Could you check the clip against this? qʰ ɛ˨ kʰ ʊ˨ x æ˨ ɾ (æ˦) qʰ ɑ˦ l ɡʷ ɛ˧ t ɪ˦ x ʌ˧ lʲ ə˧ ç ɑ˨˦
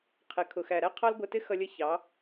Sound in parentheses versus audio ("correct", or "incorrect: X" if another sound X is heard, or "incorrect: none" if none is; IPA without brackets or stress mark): correct